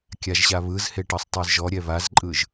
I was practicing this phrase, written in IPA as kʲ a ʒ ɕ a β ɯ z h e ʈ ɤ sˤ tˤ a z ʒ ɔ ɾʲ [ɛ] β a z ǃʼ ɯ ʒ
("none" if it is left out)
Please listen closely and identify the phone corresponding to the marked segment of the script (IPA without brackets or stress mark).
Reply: ɛ